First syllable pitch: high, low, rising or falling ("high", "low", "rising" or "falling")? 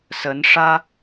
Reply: rising